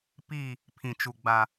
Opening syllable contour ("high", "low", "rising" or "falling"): falling